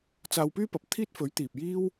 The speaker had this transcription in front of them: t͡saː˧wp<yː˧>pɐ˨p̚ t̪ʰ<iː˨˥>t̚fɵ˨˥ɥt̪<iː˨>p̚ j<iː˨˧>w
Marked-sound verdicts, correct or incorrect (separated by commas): incorrect, incorrect, correct, incorrect